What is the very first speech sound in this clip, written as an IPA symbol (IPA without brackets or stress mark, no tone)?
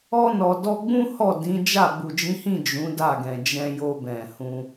ɔ